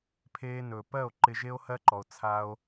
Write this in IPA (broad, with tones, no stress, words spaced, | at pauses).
pʰeː˧nɵː˨pɜ˦˨o̯ ǃɪ˧ʒe˦o̯hɜ˦ǃɔ˨o̯ t͡sʰa˧o̯